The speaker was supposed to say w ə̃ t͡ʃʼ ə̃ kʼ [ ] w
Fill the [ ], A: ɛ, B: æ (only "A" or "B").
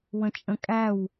B